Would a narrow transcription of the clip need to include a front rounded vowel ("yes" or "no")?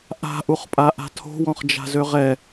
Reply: yes